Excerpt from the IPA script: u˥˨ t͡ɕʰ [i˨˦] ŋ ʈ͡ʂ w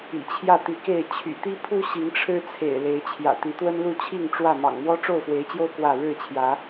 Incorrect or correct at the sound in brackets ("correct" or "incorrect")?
incorrect